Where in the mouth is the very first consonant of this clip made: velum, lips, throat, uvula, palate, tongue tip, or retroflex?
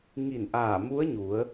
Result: velum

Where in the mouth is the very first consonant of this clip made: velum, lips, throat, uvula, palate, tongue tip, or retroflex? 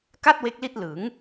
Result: velum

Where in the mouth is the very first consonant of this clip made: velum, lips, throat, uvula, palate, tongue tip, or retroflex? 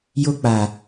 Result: palate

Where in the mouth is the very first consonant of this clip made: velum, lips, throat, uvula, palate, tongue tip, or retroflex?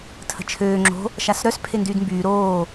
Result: tongue tip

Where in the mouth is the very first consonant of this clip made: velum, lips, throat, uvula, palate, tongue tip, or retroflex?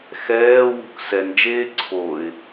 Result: velum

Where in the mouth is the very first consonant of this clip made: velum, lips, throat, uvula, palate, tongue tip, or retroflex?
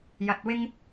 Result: palate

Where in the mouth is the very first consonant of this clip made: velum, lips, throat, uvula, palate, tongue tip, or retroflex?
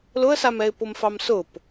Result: tongue tip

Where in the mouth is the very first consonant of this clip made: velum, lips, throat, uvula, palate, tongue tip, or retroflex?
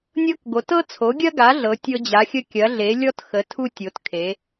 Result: tongue tip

